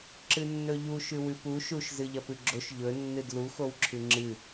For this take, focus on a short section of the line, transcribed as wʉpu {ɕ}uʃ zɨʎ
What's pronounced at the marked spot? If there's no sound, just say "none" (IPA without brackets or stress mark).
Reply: ʃ